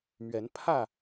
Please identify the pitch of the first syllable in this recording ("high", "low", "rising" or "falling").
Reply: rising